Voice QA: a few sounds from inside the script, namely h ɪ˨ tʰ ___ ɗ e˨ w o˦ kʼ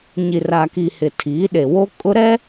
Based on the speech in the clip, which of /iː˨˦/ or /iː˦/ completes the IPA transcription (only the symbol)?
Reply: iː˨˦